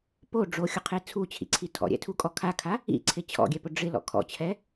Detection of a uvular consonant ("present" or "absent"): present